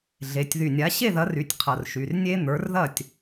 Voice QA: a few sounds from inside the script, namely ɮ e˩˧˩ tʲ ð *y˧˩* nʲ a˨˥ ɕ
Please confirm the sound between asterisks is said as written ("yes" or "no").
yes